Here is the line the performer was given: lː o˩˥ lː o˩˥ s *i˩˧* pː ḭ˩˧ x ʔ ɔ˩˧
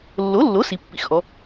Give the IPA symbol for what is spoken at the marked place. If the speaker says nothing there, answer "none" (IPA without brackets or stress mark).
i˩˧